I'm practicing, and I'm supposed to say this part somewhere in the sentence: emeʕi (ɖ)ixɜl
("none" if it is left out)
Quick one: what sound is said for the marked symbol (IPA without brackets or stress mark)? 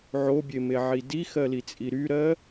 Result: d